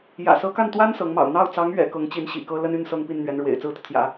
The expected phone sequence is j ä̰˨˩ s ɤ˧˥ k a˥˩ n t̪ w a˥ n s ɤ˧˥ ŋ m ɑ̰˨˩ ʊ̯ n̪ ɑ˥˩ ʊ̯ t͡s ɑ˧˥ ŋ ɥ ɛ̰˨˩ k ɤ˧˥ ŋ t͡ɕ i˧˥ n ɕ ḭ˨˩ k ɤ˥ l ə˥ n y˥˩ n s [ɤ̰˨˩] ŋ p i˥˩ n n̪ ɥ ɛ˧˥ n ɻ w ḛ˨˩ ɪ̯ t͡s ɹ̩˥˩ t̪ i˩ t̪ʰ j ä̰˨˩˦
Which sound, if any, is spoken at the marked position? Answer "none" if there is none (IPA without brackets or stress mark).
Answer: ɤ˥